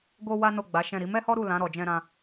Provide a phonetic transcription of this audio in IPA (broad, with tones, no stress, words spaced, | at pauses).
ɡo˦ wa˦no˦˨ɡ͡ba˨˦ʃɛ̃˦˨ ɾi˨˦mɛ˦hɔ˦ ɾu˦˨ lã˨˦ ɾɔ˧d͡ʒɛ̃˦ɾã˦